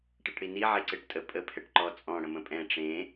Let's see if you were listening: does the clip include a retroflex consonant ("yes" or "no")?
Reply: yes